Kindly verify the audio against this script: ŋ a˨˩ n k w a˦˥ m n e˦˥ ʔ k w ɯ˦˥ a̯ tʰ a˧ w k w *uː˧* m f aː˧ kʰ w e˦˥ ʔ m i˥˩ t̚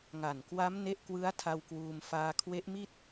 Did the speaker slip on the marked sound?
no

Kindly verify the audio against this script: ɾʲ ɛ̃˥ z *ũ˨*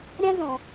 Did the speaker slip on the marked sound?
no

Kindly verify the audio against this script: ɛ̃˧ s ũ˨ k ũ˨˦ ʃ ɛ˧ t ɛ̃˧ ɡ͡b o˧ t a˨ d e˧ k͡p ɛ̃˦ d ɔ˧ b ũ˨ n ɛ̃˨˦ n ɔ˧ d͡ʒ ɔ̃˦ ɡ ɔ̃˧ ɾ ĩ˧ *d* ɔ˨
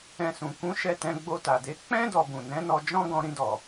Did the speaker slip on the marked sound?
no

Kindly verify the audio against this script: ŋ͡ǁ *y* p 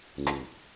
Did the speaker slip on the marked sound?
no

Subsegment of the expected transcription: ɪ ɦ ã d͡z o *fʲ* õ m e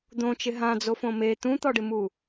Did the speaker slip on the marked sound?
yes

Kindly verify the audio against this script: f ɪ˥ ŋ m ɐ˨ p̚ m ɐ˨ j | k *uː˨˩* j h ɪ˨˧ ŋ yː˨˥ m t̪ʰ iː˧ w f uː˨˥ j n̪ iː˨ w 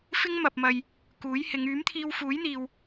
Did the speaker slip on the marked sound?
yes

